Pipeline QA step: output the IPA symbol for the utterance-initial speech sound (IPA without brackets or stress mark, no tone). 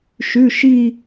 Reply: ʃ